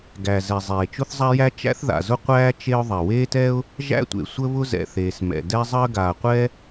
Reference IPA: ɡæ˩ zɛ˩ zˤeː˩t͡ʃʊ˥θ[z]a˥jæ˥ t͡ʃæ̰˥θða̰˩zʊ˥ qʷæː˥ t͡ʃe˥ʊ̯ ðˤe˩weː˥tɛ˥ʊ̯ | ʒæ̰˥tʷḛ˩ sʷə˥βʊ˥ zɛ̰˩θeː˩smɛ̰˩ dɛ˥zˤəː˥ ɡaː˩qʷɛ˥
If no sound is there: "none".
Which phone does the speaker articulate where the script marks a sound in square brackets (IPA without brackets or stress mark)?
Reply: zˤ